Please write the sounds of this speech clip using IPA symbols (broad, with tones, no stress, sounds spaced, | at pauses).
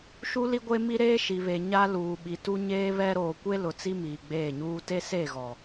ʃ u˦ l i˦ ɡʷ e˦ m i˦ ɾ eː˦ ʃ i˨ β e˨ ɲ a˦ l uː˨ ɓ i˨ t u˦ ɲ eː˦ β ɛ˦ ɾ oː˨ kʷ e˦ l ʊ˨ t͡s i˦ m iː˨ ɡ͡b eː˦˨ ɲ uː˦ t e˦ s e˦˨ ɣ ɔ˨